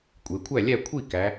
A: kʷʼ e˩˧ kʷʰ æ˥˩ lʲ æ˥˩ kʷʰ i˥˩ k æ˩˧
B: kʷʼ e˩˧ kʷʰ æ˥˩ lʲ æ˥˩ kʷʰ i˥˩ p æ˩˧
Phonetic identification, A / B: A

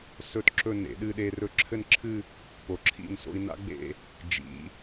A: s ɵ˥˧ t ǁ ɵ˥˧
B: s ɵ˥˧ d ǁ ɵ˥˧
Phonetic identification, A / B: A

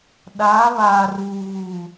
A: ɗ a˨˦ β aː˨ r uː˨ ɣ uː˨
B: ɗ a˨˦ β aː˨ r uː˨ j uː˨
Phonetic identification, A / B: A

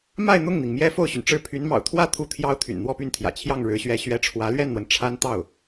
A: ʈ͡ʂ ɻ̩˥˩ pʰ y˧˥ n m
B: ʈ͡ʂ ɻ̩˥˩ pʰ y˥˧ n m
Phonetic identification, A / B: A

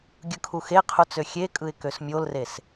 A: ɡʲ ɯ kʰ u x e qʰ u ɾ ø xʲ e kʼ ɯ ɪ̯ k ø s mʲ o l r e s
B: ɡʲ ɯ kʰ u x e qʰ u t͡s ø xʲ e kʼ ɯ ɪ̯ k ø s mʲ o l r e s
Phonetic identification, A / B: B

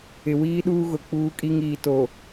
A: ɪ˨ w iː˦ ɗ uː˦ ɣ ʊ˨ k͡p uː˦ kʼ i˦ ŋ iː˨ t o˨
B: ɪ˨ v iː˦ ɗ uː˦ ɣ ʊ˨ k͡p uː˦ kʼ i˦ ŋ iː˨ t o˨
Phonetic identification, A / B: A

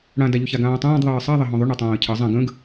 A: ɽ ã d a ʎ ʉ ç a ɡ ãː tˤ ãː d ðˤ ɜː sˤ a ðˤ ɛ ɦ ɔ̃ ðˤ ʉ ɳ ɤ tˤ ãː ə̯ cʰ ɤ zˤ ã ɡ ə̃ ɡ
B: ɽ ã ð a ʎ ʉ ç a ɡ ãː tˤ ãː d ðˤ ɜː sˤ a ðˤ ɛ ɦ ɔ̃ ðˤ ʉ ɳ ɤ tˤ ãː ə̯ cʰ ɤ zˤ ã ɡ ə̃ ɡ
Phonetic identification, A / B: A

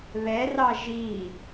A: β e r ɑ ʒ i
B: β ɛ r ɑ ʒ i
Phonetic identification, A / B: B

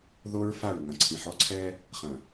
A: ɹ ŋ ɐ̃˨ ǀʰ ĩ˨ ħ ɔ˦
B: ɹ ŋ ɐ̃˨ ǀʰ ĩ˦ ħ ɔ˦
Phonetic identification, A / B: A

